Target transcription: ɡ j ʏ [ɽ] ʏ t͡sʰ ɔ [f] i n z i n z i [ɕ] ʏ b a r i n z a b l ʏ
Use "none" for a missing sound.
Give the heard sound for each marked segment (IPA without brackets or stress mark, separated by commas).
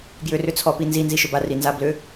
r, p, ʃ